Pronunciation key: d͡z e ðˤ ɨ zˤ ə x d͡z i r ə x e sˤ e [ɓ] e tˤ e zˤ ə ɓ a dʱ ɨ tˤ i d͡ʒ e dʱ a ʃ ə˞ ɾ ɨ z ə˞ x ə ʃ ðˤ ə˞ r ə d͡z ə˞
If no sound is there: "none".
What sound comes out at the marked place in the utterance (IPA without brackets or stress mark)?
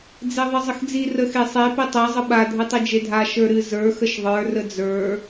p